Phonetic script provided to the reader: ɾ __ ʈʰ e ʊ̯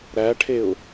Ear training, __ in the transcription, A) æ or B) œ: A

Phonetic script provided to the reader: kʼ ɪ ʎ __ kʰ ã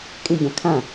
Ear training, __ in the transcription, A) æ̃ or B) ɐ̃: B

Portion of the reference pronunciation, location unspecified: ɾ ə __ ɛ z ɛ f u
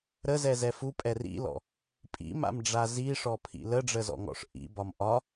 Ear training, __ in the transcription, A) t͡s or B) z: B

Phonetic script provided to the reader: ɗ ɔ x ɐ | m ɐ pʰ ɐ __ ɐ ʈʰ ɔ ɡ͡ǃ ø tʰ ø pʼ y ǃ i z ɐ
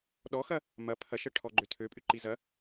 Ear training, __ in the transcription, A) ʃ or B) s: A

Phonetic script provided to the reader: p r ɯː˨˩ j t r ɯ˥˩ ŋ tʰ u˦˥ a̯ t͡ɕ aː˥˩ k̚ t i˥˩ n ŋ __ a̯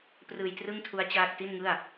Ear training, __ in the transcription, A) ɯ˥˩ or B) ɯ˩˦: A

